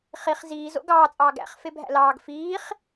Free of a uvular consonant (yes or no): no